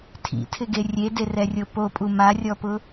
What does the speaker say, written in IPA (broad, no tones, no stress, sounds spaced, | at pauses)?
tʰ ḭ tʰ ɪ ɡ e rʲ e d e r ɛ rʲ o p o pʼ u m a rʲ ɔ p ʊ